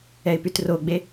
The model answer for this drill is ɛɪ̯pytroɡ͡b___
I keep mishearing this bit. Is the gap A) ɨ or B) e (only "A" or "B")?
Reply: B